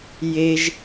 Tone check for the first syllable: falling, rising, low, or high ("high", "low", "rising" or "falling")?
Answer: high